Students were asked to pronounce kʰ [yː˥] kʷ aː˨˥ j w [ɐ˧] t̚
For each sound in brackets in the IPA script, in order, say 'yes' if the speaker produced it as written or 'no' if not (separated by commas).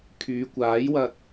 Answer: no, yes